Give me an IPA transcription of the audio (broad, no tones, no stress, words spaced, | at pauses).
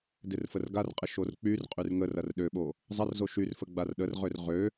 dɪrfərɡarqʼɪ ʃork͡pyrqʼyr ŋər ɐrɗøɓo | zˤɐrzo ʃyrfə ɡ͡barɗərʁør ʁø